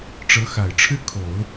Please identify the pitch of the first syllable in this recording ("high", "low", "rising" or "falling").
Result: rising